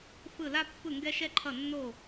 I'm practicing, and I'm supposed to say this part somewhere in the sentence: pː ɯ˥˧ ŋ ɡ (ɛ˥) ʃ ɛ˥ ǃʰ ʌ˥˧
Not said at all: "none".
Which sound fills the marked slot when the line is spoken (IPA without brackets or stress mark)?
ɛ˥